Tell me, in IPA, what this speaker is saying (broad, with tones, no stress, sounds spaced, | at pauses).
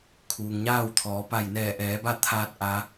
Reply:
kʰ uː˩ ŋ ɲ aː˥˨ w t̪ʰ ɔː˩˧ p a˧˩ j n ɛː˧˩ ʔ ɛː˩˧ b a˥˨ t̪ʰ aː˧ t̚ ʔ a˧˥